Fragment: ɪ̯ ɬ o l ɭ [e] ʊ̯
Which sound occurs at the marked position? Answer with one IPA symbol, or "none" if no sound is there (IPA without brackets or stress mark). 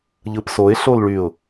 y